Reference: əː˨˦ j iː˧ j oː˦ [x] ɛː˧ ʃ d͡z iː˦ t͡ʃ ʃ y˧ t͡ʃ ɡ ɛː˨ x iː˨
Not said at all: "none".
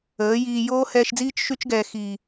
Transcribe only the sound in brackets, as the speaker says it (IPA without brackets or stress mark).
h